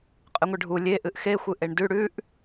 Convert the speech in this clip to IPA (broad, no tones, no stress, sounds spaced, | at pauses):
qʼ ɨ ŋʷ ɨ ɖʱ u lʲ e ʔ ɨ ʔ x e xʷ ɨ ʔ e ɳ d ʉ ɽ ʉ ʔ